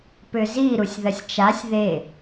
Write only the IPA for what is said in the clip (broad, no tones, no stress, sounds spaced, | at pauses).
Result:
p ʏ z i ɾ u sʲ ð ɐ sʲ t͡ʃ a sʲ ð e